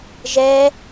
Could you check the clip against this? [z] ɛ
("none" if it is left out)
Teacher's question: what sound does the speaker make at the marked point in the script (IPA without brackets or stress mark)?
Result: ʒ